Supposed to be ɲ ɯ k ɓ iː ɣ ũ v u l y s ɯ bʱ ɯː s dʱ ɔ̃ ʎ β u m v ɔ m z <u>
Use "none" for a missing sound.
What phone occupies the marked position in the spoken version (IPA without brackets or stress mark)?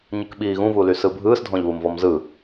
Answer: ɯ